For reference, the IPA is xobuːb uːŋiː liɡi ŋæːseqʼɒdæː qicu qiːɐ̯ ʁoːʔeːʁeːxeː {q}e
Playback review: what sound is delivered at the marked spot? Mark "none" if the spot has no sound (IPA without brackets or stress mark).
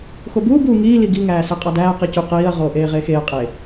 qʼ